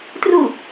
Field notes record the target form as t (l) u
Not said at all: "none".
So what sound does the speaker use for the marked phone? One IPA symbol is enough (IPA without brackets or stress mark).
r